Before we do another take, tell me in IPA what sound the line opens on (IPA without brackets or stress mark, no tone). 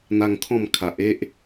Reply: n̪